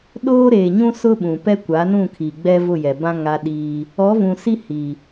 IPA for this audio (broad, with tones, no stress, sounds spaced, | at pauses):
ɗ oː˦ ɾ eː˨ ɲ ũ˦ s ʊ˦ ɓ ũ˨ p ɛ˦ kʷ a˨˦ n ũ˦˨ kʰ iː˨ ɡ͡b ɛ˦ v ʊ˦˨ j ɛ˨ b ã˦ ŋ a˦ ɗ iː˦ | ɔ˨˦ v ũ˨ s i˦ h i˨